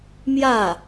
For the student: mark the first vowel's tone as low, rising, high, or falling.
falling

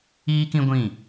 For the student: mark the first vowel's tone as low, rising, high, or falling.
high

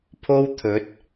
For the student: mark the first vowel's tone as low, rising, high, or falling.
high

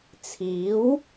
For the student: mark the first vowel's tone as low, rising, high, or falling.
rising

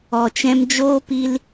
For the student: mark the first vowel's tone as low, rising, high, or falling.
low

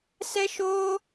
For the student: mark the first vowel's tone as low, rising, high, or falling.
high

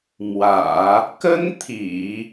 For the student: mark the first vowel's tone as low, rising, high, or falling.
low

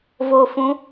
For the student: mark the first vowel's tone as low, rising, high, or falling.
low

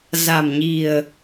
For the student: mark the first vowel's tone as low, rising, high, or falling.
low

